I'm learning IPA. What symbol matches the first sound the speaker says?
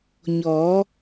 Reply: ɲ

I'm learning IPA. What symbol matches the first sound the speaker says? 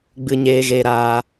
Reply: ɡ͡b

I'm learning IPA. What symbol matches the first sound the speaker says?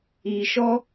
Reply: iː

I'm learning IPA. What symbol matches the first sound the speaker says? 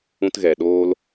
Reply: ũ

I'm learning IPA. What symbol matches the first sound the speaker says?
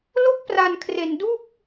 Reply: l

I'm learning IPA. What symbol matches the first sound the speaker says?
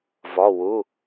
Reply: v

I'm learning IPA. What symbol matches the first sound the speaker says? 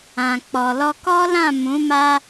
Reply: ã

